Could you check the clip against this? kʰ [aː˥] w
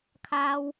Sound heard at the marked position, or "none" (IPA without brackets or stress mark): aː˥